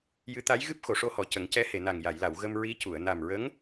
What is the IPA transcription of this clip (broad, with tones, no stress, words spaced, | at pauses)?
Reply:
jɨ˧˥t̪a˧˥j ɣɨ˦˥p̚xo˨˩˨ʂo˧hɔ˨˩ cə˨˩˦ŋcɛ˧˥ he˨˩˨na˨˩ŋ ja˨˩˨jla˨˩˨w ɣə˧mɹi˧˥cu˨˩˨ə̯ na˨˩mɹə˧˥ŋ